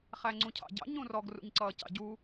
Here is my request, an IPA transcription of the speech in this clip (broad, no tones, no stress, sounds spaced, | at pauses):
χ æ ŋ͡ǀ ũ cʰ ɑ̰ ɟ ɑ̰ ɲ ũ r ɔ ɡ r ṵ ɲ ǀ ʌː c ɑ̰ ɟ u